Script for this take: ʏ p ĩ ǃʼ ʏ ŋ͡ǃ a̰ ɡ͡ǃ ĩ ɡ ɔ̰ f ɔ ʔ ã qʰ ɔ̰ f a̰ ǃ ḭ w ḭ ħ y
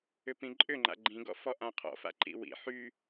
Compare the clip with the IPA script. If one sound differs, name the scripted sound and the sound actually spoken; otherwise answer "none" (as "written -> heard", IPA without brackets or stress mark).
none